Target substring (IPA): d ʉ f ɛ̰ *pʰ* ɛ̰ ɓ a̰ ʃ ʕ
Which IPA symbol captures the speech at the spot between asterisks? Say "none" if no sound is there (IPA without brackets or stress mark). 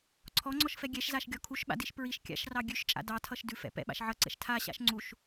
p